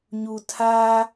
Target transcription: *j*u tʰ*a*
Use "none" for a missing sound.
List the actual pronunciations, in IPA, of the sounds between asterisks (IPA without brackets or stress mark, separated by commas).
ɲ, a